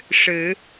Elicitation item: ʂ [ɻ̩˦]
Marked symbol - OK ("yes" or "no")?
no